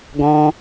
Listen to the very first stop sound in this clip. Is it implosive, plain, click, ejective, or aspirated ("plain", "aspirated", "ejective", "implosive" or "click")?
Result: plain